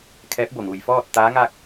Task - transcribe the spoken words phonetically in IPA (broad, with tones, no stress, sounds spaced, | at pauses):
kʰ ɛː˧˥ p̚ b o˧˩ ŋ uː˩ j f ɔː˥˨ t̚ t̪ aː˧˥ ŋ aː˥˨ k̚